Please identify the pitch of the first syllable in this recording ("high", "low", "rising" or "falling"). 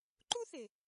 high